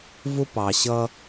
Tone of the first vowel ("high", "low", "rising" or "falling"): high